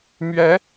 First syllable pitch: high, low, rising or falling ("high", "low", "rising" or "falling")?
rising